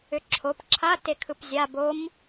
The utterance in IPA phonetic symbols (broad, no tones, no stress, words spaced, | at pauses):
ʏǁʰop ǁʰa tekʰɯpzʲa bom